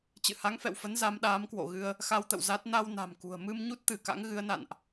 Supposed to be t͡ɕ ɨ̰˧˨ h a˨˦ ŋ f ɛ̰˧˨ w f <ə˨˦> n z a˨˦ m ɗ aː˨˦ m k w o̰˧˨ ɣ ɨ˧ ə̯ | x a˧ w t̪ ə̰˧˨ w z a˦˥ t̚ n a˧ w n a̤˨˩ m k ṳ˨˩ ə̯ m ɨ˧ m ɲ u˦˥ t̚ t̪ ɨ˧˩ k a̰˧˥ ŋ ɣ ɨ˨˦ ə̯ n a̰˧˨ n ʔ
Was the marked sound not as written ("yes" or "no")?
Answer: no